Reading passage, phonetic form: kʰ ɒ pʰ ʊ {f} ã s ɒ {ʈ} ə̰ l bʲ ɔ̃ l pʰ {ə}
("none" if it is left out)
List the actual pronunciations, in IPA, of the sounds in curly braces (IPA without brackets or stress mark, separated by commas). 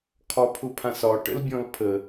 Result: pʰ, ʈ, ə